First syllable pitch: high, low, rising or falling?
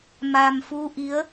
low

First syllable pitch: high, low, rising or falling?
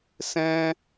high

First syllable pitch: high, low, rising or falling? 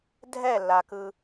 falling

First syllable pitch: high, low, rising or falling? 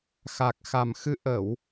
low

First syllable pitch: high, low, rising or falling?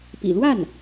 low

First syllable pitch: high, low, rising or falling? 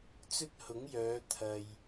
high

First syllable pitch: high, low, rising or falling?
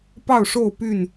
falling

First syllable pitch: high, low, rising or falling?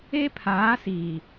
high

